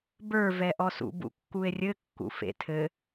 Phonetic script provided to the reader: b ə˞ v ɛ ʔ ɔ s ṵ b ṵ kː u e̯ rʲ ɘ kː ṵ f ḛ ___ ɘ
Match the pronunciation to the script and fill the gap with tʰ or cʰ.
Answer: tʰ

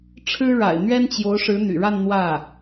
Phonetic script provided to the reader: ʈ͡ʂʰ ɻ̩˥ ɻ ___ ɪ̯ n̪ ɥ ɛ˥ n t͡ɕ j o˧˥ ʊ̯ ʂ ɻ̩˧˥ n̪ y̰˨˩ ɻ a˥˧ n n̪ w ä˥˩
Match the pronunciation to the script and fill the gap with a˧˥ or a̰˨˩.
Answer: a̰˨˩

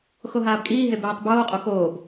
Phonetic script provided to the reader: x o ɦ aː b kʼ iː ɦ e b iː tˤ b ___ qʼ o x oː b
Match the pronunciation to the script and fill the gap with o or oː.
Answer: oː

